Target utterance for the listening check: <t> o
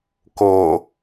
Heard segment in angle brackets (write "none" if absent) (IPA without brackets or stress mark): k